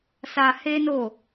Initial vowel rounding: unrounded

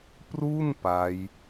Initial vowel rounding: rounded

